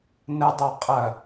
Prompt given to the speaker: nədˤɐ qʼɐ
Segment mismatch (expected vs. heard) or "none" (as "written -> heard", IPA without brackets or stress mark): none